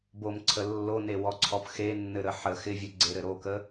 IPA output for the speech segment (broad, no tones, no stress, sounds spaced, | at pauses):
b o m ǀʰ ə lː o n e w ɔ ǀʰ ɔ p x e nː ɘ ɾ ə ħ ə x ɪ vʲ u ɡ͡ǀ e ɾ ɘ ɾ o k ə